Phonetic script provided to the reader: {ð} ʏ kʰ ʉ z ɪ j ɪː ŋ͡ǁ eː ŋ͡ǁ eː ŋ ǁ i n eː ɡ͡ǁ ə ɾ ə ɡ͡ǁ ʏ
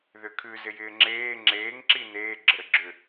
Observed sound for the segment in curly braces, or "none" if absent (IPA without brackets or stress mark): ð